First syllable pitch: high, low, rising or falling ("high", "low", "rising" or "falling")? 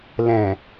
low